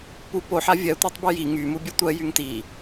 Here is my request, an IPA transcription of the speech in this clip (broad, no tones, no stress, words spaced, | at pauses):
pu poħa vʲɜtʷatˤby ji ŋymubʲe tʷɜjyŋ ti